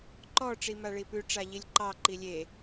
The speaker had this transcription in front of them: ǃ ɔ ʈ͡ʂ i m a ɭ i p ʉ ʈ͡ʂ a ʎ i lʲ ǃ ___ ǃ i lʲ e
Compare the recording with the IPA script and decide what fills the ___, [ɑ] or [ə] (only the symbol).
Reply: ɑ